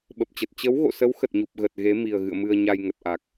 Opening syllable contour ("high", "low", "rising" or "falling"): low